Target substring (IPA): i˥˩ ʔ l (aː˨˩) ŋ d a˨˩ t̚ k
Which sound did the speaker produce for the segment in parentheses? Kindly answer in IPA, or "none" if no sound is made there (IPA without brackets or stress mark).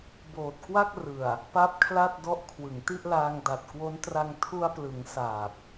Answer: aː˧